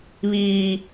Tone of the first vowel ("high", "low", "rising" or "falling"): high